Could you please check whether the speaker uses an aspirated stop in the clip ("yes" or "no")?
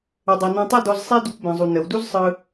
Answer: no